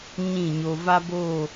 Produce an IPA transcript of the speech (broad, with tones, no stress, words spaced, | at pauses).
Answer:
ɲĩ˦˨ɲo˧ va˦bo˦˨